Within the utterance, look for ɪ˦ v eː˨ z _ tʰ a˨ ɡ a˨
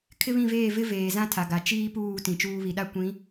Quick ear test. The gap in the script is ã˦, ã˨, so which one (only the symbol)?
ã˦